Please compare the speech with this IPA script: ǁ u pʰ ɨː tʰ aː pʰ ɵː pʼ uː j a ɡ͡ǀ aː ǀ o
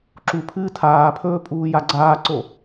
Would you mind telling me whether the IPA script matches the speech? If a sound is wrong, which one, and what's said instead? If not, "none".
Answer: none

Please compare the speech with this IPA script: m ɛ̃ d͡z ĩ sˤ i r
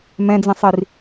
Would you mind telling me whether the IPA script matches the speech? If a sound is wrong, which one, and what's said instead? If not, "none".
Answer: none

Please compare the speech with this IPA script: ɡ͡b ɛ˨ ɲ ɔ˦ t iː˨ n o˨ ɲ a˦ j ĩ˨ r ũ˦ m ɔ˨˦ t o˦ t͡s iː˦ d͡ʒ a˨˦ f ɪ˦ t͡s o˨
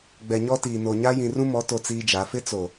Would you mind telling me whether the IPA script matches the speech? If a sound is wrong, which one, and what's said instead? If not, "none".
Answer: none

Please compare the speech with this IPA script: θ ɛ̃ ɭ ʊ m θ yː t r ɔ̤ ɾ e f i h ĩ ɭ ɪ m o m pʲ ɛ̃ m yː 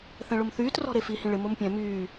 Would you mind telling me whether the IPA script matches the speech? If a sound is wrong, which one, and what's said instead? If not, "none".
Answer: none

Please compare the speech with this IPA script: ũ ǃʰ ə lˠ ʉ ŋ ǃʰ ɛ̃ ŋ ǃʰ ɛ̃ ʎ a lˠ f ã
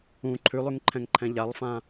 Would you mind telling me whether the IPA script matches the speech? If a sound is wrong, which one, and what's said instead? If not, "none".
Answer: ə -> ʉ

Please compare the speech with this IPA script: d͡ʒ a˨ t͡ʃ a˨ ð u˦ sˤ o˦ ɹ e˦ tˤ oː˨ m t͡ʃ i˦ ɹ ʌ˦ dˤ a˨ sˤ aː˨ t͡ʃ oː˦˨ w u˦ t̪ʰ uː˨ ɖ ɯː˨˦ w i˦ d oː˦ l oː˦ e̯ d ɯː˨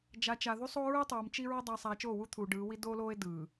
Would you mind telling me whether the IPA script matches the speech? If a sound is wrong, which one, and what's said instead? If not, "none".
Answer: none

